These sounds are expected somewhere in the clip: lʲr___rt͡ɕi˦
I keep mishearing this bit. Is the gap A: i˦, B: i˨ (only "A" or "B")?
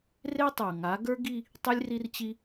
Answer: A